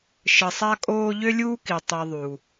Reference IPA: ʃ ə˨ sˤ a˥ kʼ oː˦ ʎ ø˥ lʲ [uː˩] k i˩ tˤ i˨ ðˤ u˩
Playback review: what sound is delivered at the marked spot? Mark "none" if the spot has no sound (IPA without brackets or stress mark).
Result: uː˥